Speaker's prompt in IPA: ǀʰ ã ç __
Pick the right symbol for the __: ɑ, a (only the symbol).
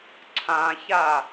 a